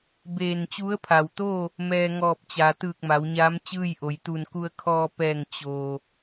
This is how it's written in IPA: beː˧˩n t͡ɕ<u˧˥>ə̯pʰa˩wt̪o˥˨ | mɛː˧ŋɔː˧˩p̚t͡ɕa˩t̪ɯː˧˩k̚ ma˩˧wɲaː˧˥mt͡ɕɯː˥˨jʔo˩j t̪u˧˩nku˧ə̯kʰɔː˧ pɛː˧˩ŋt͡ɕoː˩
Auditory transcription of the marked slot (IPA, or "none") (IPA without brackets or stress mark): u˧˥